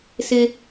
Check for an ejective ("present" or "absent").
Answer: absent